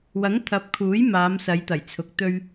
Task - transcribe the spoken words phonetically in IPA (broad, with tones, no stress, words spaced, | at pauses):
wɐ˨˥ŋt̪ʰɐ˨˥p̚kʰuː˨˥j maː˨˧msɐ˨˧jt̪ɐ˨˩jt͡sʰʊ˨˥k̚ t̪ɵ˧ɥ